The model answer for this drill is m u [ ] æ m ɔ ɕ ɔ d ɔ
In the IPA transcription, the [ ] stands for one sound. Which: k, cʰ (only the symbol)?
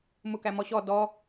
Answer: k